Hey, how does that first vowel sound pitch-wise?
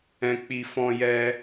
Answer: high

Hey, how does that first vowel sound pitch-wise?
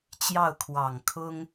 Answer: falling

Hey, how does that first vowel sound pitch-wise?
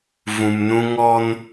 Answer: low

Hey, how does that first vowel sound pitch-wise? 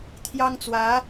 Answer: high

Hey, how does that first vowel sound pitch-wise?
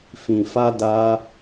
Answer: low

